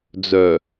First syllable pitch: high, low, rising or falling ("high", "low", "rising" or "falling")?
low